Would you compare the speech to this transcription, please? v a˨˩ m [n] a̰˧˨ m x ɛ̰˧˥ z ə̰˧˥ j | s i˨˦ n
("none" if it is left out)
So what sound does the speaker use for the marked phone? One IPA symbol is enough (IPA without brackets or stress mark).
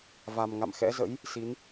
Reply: ŋ